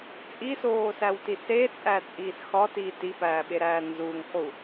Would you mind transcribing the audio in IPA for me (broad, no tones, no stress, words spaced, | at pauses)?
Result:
t͡sʼisoːsæwti set͡sʼæt͡sʼiːs xɒtiː tipæːɓeɾæː nzuːŋχu